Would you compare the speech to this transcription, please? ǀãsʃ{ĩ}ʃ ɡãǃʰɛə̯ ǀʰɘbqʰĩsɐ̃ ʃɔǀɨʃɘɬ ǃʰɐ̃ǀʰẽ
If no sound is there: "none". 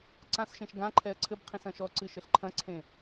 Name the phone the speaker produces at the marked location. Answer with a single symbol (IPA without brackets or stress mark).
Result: ẽ